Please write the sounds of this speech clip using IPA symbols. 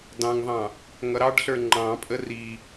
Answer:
dɑ̃ŋðˤɑ̃ | ŋʌɾɑɖɬə˞ ŋ͡ǃɑ̃pʼə ri

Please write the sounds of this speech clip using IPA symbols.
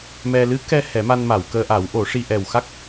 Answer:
mɛ˧ lɨ˧˥kɛ˧ hɛ˨˩˦ma˧nma˨˩˨wkəː˧ ʔa˨˩˦wʔo˨˩˦ʂi˧ ʔɛ˨˩w xa˦˥k̚

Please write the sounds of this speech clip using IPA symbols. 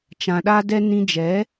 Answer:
t͡ʃã˧ɗa˦dɛ˦ nĩ˧d͡ʒɛ˨˦

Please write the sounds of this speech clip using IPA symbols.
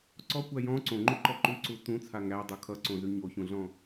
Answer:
ǀɔkʷæ jɔ̃ ǀõŋ͡ǃuǃɔ ǃʉǀu tũt͡sʰa ŋædˤu kʰʌǀõzʉ ɲoçũɮɔ̃

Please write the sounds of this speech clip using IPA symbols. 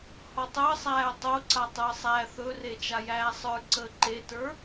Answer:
hɔtˤəː sˤæːtˤoǀa tˤəːsˤæ θɵre t͡ʃajæːsˤə˞ ǀəːǃetə˞

